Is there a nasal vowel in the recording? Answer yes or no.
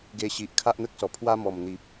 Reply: no